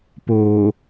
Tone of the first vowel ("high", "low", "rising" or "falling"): low